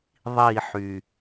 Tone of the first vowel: falling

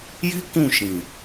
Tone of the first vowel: high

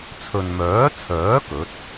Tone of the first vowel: low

